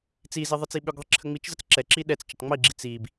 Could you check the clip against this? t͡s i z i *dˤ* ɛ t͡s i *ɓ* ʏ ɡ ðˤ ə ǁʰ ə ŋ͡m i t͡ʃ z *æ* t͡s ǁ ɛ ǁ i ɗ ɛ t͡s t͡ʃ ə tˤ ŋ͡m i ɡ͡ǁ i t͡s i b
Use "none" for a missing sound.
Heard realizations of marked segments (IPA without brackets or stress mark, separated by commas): ðˤ, ɓ, ə